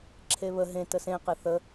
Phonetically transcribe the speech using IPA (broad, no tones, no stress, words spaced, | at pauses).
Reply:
ǁʰeβə ɦẽ təsẽqe θə